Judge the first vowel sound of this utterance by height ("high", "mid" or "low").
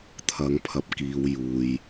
low